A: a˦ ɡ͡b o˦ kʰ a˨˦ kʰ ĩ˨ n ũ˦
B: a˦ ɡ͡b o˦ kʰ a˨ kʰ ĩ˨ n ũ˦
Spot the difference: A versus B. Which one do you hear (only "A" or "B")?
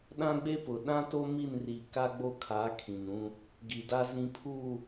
A